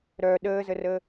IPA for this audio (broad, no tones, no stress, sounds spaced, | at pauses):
ɾ œ ɗ əː z ə r əː